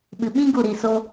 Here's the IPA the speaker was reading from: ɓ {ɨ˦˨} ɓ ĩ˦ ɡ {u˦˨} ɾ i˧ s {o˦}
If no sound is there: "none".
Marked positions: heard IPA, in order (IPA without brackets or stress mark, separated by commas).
ɨ˧, u˦˨, o˦